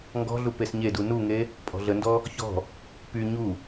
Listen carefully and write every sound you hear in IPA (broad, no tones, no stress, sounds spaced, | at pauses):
ŋ ɡ ɔ̤ ɮ u p e s ɲ e d u n u ŋ e | pʼ ɔ̤ ɮ ə n d ɔ | ç ɔ̤ | p y ɲ u